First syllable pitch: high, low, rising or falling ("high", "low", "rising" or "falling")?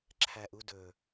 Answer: low